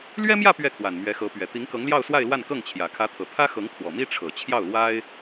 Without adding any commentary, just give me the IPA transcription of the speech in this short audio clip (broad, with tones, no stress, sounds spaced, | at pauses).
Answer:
l ɥ ɛ˥ m j ä˥˧ p ɥ ɛ˥˩ kʰ w a˨˩ n m ɥ ɛ˧˥ x ɤ˧˥ p ɥ ɛ˨˩ t̪ i˧˥ ŋ k ɤ˧˥ ŋ l j ɑ˥˧ ʊ̯ s w a˥˧ ɪ̯ l w a˥˧ n k ɤ˥˩ ŋ t͡ɕʰ j ä˨˩ kʰ ä˧˥ t̪ʰ ɤ˨˩ t̪ʰ ä˥ x ɤ˧˥ ŋ kʰ w ɔ˨˩ m i˥ ʈ͡ʂʰ ɤ˨˩ t͡ɕʰ j ɑ˥˩ ʊ̯ l w a˥ ɪ̯